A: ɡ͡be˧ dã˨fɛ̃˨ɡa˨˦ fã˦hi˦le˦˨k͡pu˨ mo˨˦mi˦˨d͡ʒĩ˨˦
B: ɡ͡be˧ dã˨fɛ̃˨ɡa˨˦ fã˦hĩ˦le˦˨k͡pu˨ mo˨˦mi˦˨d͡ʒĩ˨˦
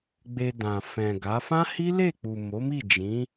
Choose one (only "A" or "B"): A